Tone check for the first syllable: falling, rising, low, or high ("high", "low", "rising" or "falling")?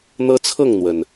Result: high